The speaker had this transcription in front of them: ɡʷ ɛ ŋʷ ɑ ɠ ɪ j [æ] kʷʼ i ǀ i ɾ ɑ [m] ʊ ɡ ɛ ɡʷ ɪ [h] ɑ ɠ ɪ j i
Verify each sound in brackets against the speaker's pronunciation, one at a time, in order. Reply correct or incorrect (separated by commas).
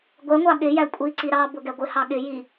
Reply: correct, incorrect, correct